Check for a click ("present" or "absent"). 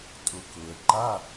present